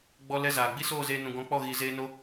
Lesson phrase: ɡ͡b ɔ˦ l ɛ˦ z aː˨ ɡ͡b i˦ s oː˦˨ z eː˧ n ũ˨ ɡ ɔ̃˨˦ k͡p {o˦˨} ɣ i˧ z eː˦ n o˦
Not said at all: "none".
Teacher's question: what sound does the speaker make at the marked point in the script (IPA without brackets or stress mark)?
ɔ˦˨